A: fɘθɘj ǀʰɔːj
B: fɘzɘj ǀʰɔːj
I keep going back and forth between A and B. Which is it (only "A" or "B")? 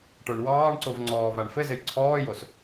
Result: B